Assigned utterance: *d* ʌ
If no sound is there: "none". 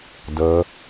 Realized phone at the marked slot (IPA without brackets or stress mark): d